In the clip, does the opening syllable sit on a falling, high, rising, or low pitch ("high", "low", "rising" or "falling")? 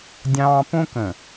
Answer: high